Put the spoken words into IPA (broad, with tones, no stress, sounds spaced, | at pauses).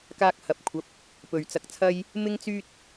k aː˧ k̚ h ɐ˨ p̚ kʷʰ ɐ˨˥ p̚ | p ɵ˨ ɥ t͡s ɐ˧ k̚ t͡sʰ ɐ˥ j | m ɪ˥ ŋ t͡s yː˥ t̚